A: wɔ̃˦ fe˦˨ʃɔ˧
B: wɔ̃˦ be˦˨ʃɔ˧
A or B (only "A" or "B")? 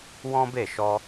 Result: B